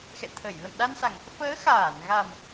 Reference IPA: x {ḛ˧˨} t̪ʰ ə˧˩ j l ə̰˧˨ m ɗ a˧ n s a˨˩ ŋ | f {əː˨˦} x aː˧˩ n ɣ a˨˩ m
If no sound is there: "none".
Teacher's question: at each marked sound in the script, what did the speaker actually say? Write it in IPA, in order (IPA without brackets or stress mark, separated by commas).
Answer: ɛ̰˧˨, əː˨˦